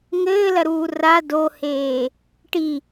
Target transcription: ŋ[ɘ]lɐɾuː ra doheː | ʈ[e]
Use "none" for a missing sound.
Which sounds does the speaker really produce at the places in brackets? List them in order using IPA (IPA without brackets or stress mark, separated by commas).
ɘː, i